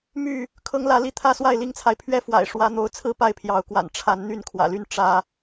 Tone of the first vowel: falling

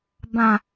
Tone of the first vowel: low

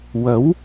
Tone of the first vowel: rising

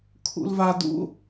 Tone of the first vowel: low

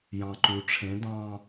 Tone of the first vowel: low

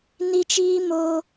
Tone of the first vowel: high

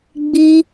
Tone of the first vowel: high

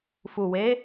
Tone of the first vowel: low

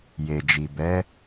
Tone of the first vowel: low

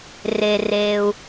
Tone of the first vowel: low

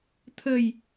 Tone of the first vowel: low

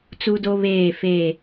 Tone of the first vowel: high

